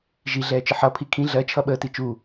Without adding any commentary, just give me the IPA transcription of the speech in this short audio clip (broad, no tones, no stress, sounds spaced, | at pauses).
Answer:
ʒ i ɮ ɛː t͡ʃ ə ħ ʌ pʰ i kʰ ĩ ɮ ɜ t͡ʃʰ ʌ ɓ əː t i t͡ʃ u